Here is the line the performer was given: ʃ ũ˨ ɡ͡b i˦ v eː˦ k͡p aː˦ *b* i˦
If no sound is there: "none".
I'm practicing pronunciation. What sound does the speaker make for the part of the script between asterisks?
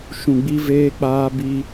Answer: b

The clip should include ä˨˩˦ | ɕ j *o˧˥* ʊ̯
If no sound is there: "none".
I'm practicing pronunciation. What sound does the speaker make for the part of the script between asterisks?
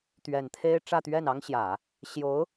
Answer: o˧˥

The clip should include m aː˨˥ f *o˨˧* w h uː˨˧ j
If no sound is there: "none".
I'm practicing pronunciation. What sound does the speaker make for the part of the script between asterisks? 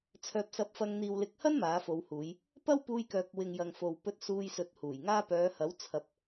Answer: o˨˧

